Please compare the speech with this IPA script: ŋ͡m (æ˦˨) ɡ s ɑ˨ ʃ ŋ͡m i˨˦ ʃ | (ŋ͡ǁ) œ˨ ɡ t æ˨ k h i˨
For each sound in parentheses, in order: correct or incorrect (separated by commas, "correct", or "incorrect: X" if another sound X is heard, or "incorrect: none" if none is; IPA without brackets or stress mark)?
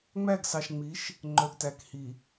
correct, incorrect: ŋ͡ǃ